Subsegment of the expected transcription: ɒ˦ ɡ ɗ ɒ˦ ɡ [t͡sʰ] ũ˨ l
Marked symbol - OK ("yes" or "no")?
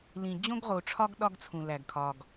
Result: yes